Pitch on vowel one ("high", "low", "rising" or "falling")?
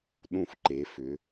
falling